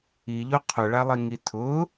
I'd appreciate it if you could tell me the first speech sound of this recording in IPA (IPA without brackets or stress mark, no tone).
i